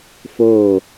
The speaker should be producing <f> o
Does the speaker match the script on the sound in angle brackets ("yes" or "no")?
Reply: yes